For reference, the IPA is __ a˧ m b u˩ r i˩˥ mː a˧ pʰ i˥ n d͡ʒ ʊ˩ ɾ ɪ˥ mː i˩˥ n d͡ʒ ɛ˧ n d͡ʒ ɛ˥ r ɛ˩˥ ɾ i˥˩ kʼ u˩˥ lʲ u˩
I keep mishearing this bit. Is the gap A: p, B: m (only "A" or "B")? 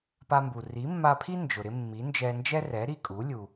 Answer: A